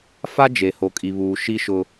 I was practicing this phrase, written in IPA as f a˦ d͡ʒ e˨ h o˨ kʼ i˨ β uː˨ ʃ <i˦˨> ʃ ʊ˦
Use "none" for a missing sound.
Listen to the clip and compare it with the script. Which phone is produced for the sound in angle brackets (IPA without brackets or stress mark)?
i˦